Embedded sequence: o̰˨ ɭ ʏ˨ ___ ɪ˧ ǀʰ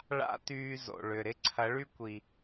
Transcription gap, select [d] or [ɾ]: ɾ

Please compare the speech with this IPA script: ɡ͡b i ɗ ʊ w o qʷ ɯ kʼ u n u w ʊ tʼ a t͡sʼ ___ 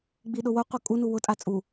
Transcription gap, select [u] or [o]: u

